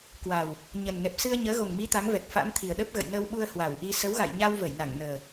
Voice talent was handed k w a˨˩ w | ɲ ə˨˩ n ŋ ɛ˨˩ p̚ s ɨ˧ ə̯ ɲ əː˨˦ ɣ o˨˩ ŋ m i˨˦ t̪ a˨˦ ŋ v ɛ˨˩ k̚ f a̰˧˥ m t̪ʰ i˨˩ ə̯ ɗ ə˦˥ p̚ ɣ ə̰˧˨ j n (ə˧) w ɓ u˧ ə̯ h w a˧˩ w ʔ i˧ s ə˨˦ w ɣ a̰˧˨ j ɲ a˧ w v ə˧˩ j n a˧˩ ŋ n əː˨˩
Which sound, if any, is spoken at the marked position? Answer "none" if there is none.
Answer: ə˧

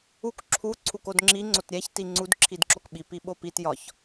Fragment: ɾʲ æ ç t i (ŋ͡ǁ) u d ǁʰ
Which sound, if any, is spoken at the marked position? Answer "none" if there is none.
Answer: ŋ͡ǀ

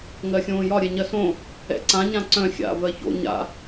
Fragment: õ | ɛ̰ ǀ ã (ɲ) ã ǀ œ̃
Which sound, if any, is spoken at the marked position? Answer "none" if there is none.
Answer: ɲ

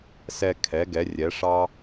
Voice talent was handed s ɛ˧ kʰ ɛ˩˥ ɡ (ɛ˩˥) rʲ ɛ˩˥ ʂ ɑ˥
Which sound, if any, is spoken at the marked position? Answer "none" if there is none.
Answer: ɛ˩˥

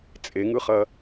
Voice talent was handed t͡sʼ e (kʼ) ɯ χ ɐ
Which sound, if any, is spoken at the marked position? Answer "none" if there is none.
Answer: ŋ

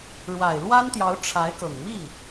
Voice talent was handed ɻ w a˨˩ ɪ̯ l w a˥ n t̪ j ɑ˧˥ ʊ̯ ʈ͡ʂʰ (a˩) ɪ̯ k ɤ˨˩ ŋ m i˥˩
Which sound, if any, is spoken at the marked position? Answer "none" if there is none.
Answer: a˧˥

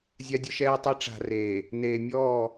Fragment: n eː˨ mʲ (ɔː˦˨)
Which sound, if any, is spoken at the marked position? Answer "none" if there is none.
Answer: ɔː˦˨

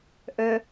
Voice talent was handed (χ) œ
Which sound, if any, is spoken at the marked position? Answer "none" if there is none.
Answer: ʔ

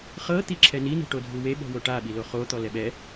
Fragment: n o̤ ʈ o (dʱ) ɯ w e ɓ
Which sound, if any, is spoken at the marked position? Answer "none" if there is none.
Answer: dʱ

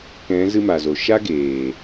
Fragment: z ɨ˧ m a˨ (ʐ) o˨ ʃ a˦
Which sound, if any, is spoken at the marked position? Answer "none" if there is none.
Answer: z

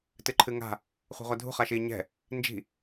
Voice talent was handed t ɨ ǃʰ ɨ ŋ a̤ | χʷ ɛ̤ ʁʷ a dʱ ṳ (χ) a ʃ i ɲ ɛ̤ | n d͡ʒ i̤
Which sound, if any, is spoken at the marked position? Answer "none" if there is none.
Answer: χ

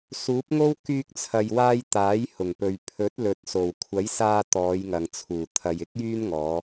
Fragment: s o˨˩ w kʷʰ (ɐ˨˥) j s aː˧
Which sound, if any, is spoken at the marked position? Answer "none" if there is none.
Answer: ɐ˨˥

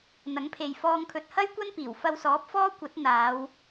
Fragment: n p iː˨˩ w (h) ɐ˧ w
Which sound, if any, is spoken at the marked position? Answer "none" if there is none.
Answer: f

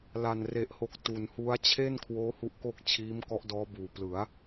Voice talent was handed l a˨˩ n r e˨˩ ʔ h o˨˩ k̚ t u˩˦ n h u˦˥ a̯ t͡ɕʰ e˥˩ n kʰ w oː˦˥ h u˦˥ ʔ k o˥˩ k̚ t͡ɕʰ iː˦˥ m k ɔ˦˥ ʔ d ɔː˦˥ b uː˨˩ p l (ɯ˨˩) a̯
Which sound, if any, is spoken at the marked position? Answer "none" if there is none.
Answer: ɯ˩˦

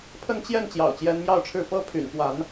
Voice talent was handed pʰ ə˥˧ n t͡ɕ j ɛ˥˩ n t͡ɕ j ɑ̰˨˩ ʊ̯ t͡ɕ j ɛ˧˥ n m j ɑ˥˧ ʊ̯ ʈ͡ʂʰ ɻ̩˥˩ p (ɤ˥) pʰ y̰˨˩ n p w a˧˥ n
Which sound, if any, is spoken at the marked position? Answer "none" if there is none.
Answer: ɤ˥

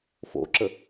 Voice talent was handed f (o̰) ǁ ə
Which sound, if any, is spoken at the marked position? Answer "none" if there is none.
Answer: o̰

